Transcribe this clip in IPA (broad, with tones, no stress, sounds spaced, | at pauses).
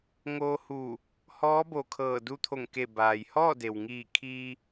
ŋ oː˧ h uː˧˩ | h ɔː˧˥ b o˧˩ kʰ ɤː˧˩ d u˧ t̪ʰ o˧˩ ŋ k e˧˩ b aː˩ j h ɔː˥˨ d e˩ w ŋ iː˧˩ kʰ iː˧